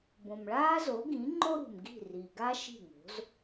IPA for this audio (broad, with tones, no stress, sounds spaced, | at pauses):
b õ˩ m ɭ aː˥ z o˩˥ ɡ ĩ˩˥ ŋ͡ǃ o˥ ɾ ṳ˩ m ɡ i̤˥˩ r i˩ ɡ a˥ ʃ i̤˥˩ ŋ o̤˩˥ z